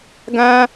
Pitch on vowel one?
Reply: high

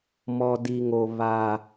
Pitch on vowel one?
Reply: high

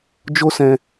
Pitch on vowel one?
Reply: high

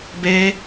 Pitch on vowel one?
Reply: high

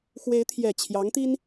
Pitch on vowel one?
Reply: rising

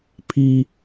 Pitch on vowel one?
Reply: high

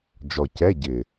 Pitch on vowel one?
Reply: low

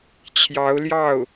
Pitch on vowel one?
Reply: rising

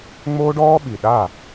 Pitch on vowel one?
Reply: high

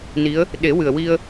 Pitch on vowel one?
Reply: rising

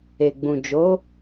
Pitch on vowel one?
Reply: low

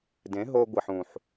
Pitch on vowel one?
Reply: rising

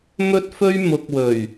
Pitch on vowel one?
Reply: high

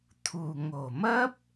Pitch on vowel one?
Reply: low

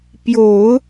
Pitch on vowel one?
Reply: low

